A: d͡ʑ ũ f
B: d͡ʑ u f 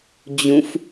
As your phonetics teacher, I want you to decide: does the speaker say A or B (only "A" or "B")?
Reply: A